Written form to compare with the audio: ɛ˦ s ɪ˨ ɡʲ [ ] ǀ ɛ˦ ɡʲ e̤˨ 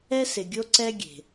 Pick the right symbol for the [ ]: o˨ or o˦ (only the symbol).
o˦